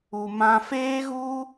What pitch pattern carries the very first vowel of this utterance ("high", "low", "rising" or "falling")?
low